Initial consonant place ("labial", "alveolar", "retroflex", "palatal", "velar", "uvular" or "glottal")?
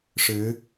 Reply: retroflex